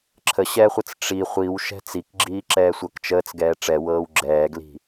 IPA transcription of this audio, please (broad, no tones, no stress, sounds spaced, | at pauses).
ǁʰ ə ɕ ɛ χʷ ə t͡s ʈ͡ʂ i χʷ i w ʃ ɛ̤ t͡s i k ɡ͡ǁ iː ǁ ɛː sʷ ɤ k t͡ʃ əː t͡s ɡ ɛː ʈ͡ʂ ɛ w ɤː w ɡ͡ǁ ɛː ɡ l i̤